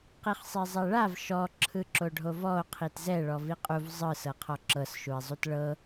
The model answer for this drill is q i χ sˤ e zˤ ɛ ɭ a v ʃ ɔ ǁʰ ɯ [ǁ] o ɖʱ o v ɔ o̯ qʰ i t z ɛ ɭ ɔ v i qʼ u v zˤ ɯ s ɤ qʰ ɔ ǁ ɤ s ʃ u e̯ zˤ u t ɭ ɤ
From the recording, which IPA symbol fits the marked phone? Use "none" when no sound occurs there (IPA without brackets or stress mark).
ǁ